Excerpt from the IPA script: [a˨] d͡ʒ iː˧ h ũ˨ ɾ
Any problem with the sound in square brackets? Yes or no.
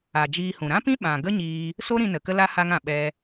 no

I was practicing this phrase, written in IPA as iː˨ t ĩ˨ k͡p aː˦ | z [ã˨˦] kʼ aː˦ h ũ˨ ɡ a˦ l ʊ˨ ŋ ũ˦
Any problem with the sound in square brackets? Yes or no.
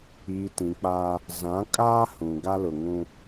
no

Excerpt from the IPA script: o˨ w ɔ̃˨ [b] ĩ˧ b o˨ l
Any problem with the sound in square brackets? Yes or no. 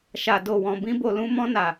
no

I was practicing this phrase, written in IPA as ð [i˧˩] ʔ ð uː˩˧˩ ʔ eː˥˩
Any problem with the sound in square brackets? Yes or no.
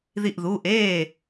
no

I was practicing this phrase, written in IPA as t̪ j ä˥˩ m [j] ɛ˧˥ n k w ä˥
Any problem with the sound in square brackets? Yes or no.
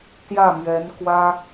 yes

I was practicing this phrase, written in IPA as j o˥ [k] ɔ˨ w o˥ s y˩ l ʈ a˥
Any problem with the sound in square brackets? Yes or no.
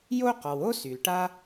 yes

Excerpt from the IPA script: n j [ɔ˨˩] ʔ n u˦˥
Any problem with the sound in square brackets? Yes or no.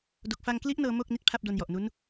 no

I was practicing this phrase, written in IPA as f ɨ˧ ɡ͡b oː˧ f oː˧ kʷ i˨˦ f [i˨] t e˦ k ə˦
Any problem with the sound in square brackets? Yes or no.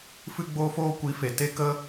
yes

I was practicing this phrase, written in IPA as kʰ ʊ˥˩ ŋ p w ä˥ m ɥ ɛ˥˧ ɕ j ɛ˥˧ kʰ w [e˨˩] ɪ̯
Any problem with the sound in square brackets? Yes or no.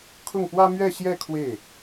yes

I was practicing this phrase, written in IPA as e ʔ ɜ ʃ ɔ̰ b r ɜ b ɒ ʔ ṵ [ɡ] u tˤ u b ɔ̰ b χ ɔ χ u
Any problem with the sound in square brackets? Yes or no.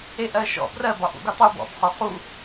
no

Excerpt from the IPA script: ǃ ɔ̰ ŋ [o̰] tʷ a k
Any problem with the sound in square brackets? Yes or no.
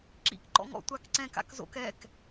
yes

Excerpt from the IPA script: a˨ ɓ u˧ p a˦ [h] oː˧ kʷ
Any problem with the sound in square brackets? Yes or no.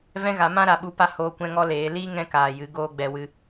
no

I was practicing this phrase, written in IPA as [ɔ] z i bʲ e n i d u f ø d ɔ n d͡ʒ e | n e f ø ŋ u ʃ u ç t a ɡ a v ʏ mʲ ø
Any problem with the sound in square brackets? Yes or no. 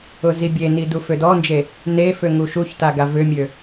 yes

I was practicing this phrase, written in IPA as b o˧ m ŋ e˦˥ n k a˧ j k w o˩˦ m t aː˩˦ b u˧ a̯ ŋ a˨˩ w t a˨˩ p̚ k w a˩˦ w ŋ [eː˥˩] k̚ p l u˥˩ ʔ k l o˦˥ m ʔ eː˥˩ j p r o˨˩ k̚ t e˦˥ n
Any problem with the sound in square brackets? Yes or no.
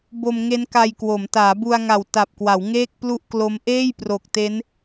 no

